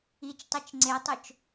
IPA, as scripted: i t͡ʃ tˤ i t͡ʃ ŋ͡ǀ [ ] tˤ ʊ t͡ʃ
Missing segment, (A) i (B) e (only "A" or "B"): B